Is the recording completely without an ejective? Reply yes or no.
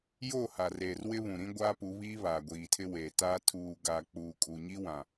no